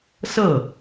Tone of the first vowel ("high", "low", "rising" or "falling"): falling